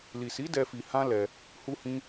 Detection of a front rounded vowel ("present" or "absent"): absent